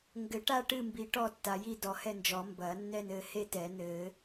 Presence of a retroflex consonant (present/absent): present